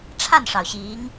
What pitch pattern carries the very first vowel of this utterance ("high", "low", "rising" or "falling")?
falling